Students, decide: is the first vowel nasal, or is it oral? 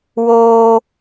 oral